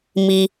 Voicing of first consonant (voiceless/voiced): voiced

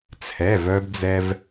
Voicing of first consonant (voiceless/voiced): voiceless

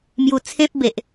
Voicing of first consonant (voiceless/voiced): voiced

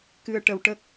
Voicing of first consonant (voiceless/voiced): voiceless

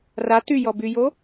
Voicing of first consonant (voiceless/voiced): voiced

